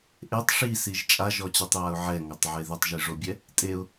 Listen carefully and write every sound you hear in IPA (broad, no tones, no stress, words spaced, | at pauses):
ʔetˤ ʂisiʒ t͡ʃʼaʒɔt͡ɕɛtˤjaʊ̯ ʕɛŋɔtˤʕe ðɪtˤʒiʐobʲɛ | tʼeʊ̯